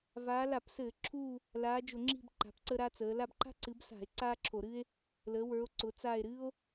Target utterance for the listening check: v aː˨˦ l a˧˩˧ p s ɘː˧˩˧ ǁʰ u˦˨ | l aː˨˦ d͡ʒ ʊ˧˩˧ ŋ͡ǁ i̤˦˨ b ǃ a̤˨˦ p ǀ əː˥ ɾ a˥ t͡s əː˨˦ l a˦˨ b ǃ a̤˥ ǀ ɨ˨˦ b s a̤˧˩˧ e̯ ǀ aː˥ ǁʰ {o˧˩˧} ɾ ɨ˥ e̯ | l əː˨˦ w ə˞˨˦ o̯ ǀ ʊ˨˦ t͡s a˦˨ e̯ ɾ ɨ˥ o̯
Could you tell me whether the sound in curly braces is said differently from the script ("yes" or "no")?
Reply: no